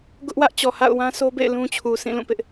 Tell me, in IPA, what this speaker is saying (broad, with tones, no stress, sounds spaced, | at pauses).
ɡ ʊ˦ ʔ w ä˦ ʔ t͡ɕ ɔ˨ h a̰˦˨ ʊ̯ w ã˦ sʰ o˦ b ḛ˦˨ ɪ̯ l ũ˦ t͡ɕʰ u˨ s ĩ˦˨ l ũ˦˨ p ɪ˦ ʔ